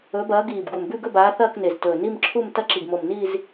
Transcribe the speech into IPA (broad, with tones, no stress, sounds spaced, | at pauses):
ɵ˨˦ b ɐː˨˦ ɡ iː˨˩ b ɡ u˨˩ m b ʉ˥˧ ɡ ɵ˥˧ b aː˨˦ θ ɐː˥˧ k n e˨˩ z t ɵː˨˩ n i˥˧ m ǁʰ u˥˧ m t ɐ˥˧ ǁ i˨˩ ɡ m o˨˩ m n iː˥˧ z